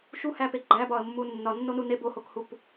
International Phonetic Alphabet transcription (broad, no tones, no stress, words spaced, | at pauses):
ʃuhæpe ɡ͡ǃæbɒə̯mːu nːɒnːonu ne bohokhup